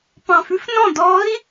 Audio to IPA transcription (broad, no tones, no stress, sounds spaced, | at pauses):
p ɑ̃ f ʉ f n ɔ̃ d ɔ i̯